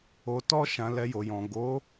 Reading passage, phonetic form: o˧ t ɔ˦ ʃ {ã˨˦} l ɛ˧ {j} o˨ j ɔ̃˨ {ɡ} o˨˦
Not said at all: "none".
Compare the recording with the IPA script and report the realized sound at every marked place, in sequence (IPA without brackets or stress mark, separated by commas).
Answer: ã˧, j, ɡ